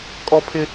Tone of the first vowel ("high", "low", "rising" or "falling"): high